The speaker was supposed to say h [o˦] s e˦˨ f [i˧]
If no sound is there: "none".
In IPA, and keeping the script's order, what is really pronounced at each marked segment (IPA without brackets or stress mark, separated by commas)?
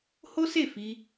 o˦, i˧